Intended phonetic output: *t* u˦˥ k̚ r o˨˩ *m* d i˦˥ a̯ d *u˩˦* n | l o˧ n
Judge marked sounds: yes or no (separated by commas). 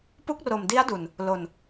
no, yes, no